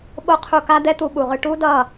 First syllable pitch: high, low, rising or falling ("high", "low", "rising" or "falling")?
high